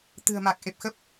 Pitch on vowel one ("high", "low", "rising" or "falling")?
low